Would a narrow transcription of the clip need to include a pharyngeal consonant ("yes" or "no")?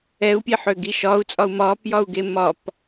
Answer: yes